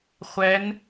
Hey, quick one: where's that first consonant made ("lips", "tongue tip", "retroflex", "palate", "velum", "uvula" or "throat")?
uvula